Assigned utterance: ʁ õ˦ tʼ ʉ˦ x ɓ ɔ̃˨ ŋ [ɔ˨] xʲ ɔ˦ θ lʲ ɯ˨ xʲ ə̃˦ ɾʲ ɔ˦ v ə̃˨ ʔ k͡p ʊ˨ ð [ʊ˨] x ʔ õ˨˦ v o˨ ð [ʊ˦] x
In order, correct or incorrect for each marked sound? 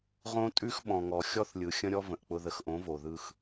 correct, incorrect, incorrect

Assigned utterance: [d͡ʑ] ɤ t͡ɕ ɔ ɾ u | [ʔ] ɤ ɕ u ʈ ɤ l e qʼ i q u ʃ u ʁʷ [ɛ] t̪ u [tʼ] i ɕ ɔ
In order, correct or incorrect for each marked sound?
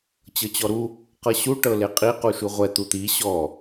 incorrect, incorrect, correct, incorrect

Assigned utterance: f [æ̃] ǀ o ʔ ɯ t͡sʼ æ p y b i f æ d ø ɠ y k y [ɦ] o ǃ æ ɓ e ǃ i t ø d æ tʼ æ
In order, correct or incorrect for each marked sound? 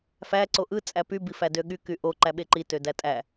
incorrect, incorrect

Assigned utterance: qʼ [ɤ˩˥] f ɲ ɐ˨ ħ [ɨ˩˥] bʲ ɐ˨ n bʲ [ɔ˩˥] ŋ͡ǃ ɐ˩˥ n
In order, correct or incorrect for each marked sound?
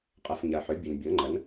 incorrect, incorrect, incorrect

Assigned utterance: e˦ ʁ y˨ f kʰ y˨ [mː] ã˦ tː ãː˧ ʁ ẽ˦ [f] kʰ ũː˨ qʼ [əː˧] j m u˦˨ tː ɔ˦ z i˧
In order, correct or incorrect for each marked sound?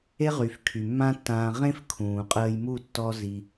correct, correct, correct

